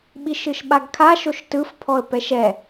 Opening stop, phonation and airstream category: implosive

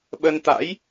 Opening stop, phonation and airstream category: implosive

